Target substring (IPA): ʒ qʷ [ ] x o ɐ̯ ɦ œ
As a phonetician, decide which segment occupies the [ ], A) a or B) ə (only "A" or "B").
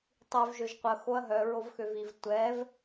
B